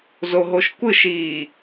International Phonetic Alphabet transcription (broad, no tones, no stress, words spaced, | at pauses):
zoɦoʃkʷɯʃiː